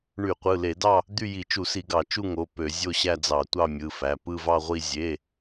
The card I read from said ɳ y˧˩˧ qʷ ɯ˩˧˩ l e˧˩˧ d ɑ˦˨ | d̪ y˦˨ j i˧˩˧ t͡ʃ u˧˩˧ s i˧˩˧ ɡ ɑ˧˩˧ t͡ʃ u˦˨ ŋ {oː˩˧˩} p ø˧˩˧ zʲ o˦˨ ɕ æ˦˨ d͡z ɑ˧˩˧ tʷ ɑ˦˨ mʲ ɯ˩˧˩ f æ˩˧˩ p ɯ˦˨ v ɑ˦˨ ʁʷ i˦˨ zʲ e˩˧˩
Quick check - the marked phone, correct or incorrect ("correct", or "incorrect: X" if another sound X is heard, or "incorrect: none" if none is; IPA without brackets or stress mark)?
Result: incorrect: o˩˧˩